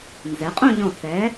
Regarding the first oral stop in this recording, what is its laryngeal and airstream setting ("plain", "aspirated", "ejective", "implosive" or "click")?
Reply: ejective